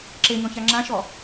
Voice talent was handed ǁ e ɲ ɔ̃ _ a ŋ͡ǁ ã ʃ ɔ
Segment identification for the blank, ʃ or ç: ç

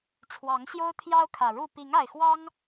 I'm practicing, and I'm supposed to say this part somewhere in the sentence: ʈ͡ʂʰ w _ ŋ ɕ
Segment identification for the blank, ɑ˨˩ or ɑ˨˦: ɑ˨˦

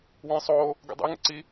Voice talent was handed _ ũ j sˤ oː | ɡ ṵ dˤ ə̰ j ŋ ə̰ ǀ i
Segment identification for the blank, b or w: w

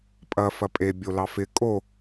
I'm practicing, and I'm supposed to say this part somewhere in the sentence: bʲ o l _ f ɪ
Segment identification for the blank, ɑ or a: ɑ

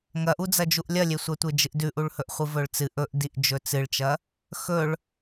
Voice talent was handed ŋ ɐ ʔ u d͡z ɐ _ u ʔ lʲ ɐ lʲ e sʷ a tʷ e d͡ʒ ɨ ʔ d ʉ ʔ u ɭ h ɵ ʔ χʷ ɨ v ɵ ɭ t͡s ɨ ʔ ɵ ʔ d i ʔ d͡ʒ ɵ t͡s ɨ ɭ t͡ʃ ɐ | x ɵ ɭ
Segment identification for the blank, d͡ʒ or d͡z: d͡ʒ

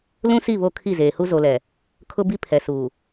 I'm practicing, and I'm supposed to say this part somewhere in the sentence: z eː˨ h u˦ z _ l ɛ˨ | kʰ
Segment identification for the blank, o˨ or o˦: o˨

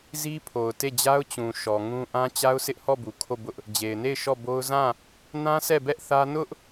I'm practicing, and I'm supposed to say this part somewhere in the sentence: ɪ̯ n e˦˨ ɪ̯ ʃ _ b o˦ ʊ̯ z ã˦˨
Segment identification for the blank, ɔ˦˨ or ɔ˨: ɔ˦˨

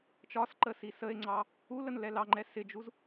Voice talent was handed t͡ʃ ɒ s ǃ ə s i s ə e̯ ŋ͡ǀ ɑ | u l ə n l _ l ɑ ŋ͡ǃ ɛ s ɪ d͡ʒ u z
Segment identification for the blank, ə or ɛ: ɛ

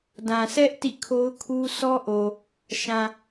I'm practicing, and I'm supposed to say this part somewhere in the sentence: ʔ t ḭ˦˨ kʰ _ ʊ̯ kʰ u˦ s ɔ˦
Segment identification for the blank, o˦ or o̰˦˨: o˦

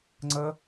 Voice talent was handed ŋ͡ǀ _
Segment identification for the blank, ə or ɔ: ə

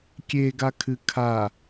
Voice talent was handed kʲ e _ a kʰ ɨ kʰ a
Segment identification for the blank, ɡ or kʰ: ɡ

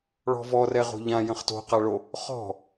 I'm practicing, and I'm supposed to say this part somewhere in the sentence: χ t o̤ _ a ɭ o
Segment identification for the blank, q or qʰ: q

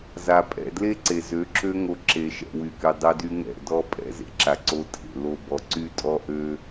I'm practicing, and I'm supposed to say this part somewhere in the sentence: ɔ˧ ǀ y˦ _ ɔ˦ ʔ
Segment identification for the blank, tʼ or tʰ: tʼ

